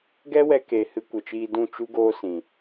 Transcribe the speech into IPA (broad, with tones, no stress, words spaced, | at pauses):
ɡɛ˦wɛ˧ke˨ hɨ˧kʷə˨t͡ʃiː˧dũ˦˨ t͡ʃu˦ɡoː˦sĩ˨